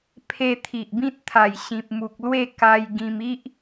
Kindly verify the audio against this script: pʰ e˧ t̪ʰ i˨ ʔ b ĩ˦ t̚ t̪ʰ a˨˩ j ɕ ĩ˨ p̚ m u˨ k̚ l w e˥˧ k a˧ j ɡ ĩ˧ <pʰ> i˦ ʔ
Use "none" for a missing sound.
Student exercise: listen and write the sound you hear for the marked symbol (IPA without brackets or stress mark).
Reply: m